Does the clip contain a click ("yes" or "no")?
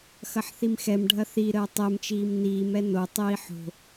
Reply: no